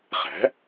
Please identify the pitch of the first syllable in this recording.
rising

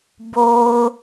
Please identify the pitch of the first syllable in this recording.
low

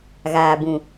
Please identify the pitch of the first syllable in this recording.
low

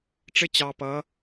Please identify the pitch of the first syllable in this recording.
high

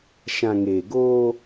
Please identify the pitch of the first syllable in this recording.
low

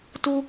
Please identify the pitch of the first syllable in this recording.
high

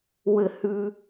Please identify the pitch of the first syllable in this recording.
falling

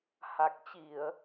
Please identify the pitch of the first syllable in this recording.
low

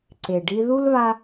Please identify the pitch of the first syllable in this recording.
low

